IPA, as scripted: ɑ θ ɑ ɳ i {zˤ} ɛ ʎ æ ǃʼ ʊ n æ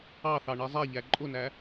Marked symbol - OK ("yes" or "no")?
yes